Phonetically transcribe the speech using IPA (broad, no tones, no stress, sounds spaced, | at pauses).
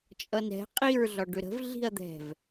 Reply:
t͡ʃʼ ʌ n ɾ ɛ̤ qʼ i ɹ ɮ ɒ ɖ ʏ ɾ ə̤ v ɮ i̤ ɐ̯ d̪ ɛ̤ v